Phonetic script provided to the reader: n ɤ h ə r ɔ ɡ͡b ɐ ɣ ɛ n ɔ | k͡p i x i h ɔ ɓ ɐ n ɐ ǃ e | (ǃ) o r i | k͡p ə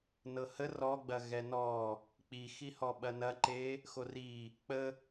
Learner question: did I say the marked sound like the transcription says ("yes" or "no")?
no